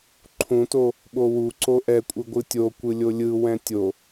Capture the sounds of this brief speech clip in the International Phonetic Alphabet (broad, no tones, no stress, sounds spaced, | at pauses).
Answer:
ǃʰ ũ t o | ɓ o w u ǀ o ʔ ɛ kʷʼ ɯ ɡʷ ɯ tʲ o kʷ ɯ lʲ o lʲ ɯ w ɛ̃ tʲ o